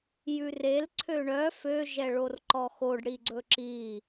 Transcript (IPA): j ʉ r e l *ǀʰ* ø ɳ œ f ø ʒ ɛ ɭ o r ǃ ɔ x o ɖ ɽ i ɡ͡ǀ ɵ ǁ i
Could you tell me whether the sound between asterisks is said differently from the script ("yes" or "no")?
no